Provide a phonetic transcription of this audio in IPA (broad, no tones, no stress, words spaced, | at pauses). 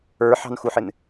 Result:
ə˞ħɑ̤nxuħɪn